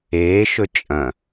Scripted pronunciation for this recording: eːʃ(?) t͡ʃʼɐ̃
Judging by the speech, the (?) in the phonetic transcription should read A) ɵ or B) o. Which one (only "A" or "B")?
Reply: A